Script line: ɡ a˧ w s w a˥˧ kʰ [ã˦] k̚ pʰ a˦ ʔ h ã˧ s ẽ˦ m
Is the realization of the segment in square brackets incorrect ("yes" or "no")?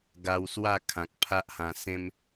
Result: yes